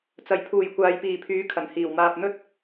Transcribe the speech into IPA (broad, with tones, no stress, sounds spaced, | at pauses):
t͡s ɐ˨˩ j pʰ uː˨˩ j kʷ aː˨ j p iː˨˩ pʰ yː˨˥ kʰ ɐ˨˩ n h iː˨˩ w m aː˨ p̚ n̪ ɵ˥ t̚